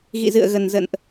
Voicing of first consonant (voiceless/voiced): voiced